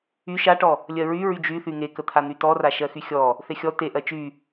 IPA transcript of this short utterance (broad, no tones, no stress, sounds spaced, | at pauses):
y ʃ a ʈ ɔ | lʲ ɜ ɹ y ɹ y d͡ʒ y θ y ŋ e k ə t̪ʰ a n̪ y t ɔ r a ʃ ɜ x y xʲ ɔ | θ e xʲ ɔ t e ʔ ɜ t͡ʃ y